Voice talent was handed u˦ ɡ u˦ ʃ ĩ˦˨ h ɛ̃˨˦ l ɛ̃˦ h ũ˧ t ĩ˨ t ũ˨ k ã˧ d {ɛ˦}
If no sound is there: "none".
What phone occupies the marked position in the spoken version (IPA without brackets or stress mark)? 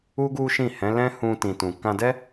ɛ˦